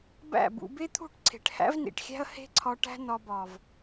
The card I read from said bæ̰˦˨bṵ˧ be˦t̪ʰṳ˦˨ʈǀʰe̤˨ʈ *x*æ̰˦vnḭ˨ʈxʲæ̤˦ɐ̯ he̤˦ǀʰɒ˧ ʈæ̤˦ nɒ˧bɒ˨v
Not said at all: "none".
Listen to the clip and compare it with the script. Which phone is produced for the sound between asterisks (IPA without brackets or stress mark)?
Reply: h